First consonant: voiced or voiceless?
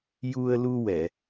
voiced